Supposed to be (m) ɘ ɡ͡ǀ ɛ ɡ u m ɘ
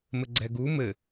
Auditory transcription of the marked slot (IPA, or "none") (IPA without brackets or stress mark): m